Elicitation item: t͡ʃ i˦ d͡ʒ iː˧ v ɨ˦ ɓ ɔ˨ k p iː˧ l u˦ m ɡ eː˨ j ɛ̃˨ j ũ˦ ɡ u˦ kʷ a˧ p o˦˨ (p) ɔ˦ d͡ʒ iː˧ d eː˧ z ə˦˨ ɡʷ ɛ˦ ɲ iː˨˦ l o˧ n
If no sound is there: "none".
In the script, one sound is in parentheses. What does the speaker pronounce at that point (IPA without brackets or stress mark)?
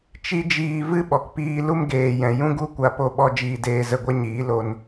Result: ɓ